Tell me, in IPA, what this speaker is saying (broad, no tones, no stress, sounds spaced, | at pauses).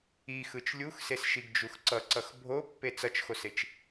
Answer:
i x ɯ t͡ʃ lʲ u x s e s ʃ i ɡ d͡ʒ u x ǀ ʌ ǀ ʌ x bʱ o pː e t͡s ʌ t͡ʃ x o s e t͡ʃ